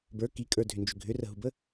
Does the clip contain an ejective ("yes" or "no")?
yes